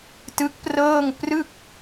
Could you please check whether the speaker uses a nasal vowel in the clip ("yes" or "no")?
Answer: no